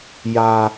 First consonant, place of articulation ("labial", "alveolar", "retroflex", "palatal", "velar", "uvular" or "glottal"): palatal